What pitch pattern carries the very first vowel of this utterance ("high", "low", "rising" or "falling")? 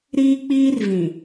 high